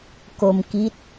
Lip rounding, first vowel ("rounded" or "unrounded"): rounded